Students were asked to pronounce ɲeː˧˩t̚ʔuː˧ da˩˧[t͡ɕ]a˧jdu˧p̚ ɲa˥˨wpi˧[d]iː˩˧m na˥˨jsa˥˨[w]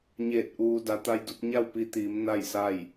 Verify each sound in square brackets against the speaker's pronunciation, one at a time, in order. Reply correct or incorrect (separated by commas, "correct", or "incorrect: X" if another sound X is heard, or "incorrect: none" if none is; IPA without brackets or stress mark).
incorrect: t̪, incorrect: t̪, incorrect: j